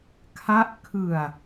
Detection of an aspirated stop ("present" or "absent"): present